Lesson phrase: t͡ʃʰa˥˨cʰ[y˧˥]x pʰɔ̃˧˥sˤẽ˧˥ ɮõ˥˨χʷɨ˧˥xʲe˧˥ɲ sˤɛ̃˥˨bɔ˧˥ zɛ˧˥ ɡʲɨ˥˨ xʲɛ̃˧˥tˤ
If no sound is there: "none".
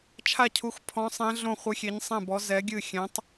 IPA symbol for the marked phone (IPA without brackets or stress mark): u˧˥